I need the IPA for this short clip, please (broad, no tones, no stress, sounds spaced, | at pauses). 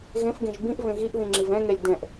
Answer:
ɣ ẽ f ɡ ẽ ʒ b ĩ ʔ v ẽ ɣ i ʔ ð ĩ ŋ͡ǁ i v ɛ̃ ŋ ɛ lʲ d ɛ̃ ʔ